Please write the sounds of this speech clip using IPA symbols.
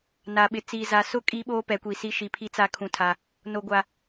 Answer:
n a˨ ɓ ɪ˨ t͡s i˨ z a˨ s ʊ˦ kʼ i˦ ɓ oː˦ p ɛ˨˦ kʷ iː˨ s i˦ ʃ i˨ pʰ i˦ t͡s a˦ kʰ ũ˨ tʰ a˨ | n o˨ ɡʷ a˨

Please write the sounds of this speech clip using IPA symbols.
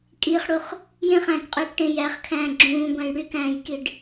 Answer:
kʼ i χ ɽ u χ | j ẽ χ æ̃ː k qʼ yː k ʈ ẽ j æ χ kʰ æ̃ː ɡ͡ǁ ũː ɡʷ æ̃ j ɽ y k æ̃ː j k i ɖ

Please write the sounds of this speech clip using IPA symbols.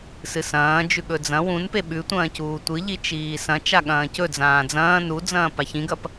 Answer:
s ɨ s ɐ̃ː d͡ʒ ʉ ɠ ɵ d͡z ɐ̃ w ũ n p e ɓ ʉ tʷ ɐ̃ː c uː tʷ ɨ ʎ i t͡ʃ iː s ɐ̃ t͡ʃ a ɠ ɐ̃ː c ɵ d͡z ãː d͡z ɐ̃ː n u d͡z ɐ̃ː p a ç ĩ ɡ ɐ p

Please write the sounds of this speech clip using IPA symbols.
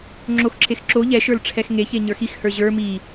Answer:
ŋ͡ǁ o x ǁ e x ǁ o ʎ ɛ ʃ ə˞ l ʈ͡ʂʰ ɛ x ŋ e ç e ɲ ə˞ x i x h ə˞ ʑ ə˞ m i

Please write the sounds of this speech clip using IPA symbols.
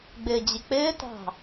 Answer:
ɡ͡b ɪː d͡ʑ ɪ k͡p ɪː t ɑ̤

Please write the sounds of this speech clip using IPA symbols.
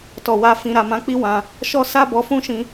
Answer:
t ɔ˨ w a˧ f ĩ˨ ɾ a˨ m ã˨˦ k͡p i˦ w ã˧ | ʃ ɔ˦ s a˦ b ɔ˧ f ũ˦ ʃ ĩ˧

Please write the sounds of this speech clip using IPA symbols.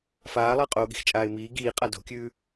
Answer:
f aː lˠ ɐː qʼ oː ɠ i̤ x t͡ʃʼ aː ɪ̯ m iː ɡ iː qʼ a d o̤ kʲ ʉː

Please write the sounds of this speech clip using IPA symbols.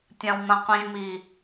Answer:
tʲ ã w m ã qʷ ĩ ʒ m i

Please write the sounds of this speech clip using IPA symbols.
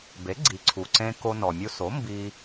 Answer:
b e˩˥ ɡ͡ǀ i˩ ǀʰ u˩ ǀ ẽ˧ k o˧ n ɔ˩ mʲ u˧ s o˩˥ m b i˧

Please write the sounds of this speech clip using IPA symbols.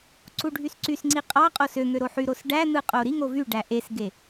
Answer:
ǀ u ɖʱ y s ǀ y s ŋ͡ǀ i qʼ ɑ qʼ o s ø ŋ ø ɾ o ħ y ɾ o s ɖ æ n̪ ɯ qʼ o ɾ i ŋ o v y ɖ æ ʔ e s ɡ e

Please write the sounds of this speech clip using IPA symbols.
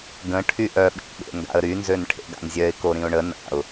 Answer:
ɡ ə̃ ʈʰ y ʔ œ ɓ ḭ ʔ ɓ ḛ ŋ ɡ a̰ ə̯ ɾ y n z ø n ʈʰ ḛ ɡ a̰ n zʲ œ ɪ̯ k o ɾ ĩ ʊ̯ ɳ ə n a̰ ʊ̯

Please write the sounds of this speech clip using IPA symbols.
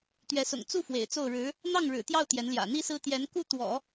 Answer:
t̪ ɥ ɛ˧˥ s ʊ̰˨˩ ŋ t͡s u˥˩ f w ḛ˨˩ ɪ̯ t͡s o˥˩ ʊ̯ ɻ ɻ̩˧˥ | n̪ ɑ˥˩ ŋ ɻ ɻ̩˨˩ t̪ j ɑ˥˩ ʊ̯ t̪ j ɛ˧˥ n l j ä̰˨˩ n̪ i˥ s ɹ̩˥ t̪ j ɛ˧˥ n k u˥ t̪ w ɔ̰˨˩˦

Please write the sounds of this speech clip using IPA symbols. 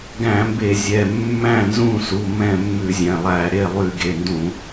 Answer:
ɡ æ̃˧˩˧ m b e˧˩˧ zʲ ɛ˩˧˩ mː æ̃˥˩ n z ũ˥˩ s u˩˧˩ m ɛ̃˥˩ mː ʉ˧˩˧ zʲ ɛ̃˩˧˩ lˠ æ˧˩˧ ɾ e˥˩ lˠ y˧˩˧ ɡ e˩˧˩ n d ũ˧˩˧

